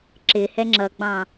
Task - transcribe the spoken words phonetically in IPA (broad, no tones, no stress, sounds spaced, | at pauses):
ǁ ɪ h ɛ ŋ͡ǁ ʌ ɡ͡b ɑ̃